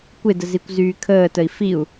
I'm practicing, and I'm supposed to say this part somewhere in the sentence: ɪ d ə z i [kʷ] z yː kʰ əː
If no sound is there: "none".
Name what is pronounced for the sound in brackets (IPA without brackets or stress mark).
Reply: kʷ